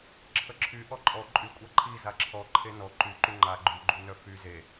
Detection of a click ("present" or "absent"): present